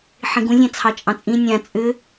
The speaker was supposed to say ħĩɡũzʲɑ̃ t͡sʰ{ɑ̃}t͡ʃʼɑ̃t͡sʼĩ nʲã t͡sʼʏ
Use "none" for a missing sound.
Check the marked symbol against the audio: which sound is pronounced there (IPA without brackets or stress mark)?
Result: ɑ